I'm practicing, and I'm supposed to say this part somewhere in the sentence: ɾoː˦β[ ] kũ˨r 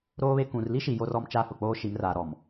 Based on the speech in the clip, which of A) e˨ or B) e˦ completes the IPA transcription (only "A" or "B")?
B